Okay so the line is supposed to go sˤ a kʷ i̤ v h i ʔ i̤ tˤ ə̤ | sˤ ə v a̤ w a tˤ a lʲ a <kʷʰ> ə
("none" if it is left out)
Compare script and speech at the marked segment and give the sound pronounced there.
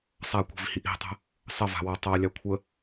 kʷʰ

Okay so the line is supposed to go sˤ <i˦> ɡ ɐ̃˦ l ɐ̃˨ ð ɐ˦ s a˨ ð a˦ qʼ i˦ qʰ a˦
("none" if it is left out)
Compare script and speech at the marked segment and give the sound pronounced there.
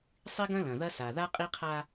i˦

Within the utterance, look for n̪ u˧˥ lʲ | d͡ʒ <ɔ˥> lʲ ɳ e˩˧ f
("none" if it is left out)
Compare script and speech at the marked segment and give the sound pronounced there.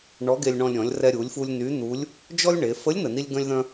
ɔ˥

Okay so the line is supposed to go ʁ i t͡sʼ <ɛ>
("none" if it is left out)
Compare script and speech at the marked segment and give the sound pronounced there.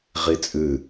ɨ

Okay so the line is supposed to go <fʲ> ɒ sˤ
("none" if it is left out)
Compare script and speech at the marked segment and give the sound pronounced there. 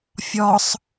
fʲ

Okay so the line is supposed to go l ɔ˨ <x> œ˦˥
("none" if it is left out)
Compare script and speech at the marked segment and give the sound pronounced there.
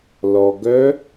ɡ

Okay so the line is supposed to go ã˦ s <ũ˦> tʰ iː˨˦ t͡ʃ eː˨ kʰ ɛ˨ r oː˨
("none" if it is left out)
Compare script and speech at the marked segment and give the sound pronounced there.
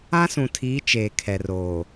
ũ˨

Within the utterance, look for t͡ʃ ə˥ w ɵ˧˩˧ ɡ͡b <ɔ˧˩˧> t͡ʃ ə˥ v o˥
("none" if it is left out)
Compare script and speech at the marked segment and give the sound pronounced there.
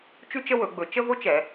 ɵ˧˩˧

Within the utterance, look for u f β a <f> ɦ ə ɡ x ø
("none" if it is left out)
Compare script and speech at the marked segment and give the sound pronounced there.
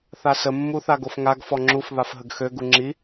f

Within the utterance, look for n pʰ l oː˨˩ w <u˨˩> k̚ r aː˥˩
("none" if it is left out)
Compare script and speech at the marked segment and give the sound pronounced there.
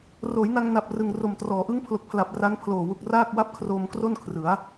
u˨˩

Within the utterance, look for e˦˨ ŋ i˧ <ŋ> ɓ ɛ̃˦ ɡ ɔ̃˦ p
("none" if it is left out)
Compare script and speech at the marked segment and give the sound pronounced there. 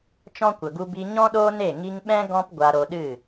ŋ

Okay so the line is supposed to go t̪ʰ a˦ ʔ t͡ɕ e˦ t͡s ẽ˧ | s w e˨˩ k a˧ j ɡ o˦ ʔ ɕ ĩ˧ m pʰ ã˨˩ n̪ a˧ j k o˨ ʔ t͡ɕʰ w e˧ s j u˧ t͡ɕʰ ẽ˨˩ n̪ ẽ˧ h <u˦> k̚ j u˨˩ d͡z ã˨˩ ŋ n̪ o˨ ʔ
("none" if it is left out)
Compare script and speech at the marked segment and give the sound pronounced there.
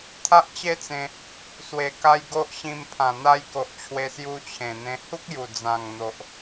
u˦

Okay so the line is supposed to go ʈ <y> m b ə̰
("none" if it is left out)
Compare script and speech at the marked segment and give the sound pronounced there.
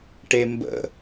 e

